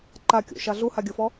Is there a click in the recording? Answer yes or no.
yes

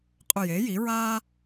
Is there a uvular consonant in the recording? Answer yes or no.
yes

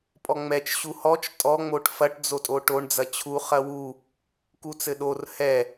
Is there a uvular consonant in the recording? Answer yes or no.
yes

